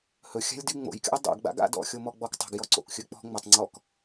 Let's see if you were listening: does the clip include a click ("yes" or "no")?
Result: yes